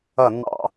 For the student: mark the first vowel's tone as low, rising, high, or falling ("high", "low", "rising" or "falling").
falling